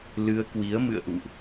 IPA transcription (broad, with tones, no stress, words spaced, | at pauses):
lɨ˧ə̯kwi˨˦ə̯ mɨ̰˧˨ə̯ʔṵ˧˨ʔ